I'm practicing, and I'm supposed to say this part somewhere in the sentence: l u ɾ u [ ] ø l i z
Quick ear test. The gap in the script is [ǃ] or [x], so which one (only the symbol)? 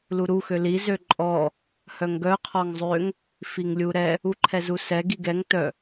x